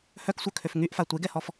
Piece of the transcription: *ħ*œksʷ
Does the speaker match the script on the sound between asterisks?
no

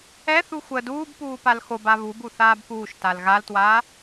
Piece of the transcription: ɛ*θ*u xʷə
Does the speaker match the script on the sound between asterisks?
yes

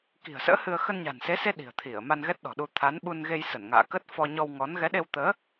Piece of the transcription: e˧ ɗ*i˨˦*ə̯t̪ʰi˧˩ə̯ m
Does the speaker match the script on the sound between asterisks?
no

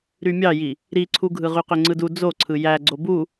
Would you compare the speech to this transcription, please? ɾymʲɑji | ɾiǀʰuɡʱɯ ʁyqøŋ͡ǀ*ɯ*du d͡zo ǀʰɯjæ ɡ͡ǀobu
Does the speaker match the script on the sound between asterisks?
yes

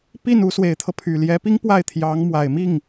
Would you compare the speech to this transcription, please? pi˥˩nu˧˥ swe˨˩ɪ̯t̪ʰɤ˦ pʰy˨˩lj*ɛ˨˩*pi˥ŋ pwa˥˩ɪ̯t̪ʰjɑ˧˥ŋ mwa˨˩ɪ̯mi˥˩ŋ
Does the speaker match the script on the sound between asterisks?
no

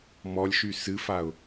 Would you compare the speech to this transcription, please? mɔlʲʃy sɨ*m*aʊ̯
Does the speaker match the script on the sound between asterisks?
no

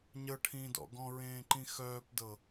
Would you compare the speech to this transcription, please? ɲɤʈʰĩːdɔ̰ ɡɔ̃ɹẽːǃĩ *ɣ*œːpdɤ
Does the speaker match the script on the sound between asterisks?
no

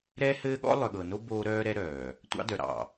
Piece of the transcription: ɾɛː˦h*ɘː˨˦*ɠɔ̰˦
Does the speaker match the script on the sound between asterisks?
no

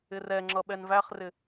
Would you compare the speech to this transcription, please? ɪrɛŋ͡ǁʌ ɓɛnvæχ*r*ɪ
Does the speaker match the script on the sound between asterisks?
yes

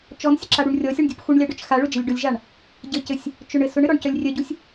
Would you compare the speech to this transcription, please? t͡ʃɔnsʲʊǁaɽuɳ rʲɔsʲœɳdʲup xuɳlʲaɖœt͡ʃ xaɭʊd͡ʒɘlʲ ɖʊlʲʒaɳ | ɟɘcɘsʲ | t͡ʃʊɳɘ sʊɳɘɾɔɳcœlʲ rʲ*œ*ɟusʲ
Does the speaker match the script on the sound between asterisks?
yes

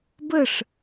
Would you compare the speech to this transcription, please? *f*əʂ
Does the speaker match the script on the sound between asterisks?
no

